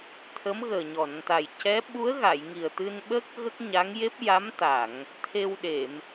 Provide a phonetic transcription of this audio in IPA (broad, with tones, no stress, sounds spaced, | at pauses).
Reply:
t̪ʰ ə˧˥ m ɣ əː˨˩ ɲ ɔ˨˩˨ n t̪ a˨˩ j c ɛ˧˥ ɓ u˧˥ ə̯ ɣ a˨˩˨ j ŋ i˨˩ ə̯ t̪ ɨ˧ n ɓ ə˦˥ k̚ ɣ ə˦˥ k̚ ɲ a˧˥ ŋ j e˦˥ p̚ j a˧˥ m t̪ a˨˩˨ ŋ | t̪ʰ e˧ w ɗ e˨˩˨ m